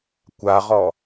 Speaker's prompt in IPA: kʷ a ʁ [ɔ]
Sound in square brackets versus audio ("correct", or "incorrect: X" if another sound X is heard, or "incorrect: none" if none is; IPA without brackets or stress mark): correct